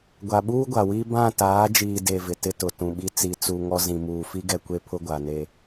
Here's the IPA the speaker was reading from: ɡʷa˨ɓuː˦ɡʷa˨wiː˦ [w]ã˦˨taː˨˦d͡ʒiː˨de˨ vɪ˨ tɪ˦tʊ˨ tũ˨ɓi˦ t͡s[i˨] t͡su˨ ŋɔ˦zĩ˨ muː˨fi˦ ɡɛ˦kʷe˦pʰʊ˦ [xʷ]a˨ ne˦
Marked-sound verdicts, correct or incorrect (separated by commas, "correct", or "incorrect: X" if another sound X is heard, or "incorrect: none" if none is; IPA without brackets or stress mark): incorrect: b, correct, incorrect: ɡʷ